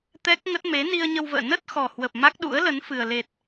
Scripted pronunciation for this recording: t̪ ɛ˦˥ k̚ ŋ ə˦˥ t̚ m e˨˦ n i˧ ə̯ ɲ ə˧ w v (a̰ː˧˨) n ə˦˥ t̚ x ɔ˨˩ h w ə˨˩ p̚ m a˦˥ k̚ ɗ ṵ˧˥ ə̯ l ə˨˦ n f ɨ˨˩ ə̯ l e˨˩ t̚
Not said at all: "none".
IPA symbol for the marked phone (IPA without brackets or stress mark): ə̰ː˧˨